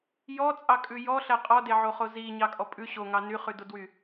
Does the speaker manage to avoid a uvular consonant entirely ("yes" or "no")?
no